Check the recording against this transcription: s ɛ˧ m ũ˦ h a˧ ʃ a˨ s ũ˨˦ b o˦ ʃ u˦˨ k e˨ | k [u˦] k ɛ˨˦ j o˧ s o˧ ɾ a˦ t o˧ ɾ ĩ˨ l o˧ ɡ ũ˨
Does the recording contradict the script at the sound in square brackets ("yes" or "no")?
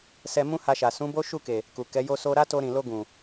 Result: yes